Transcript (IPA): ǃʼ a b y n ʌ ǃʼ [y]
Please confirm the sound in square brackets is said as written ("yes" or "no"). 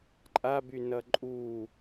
no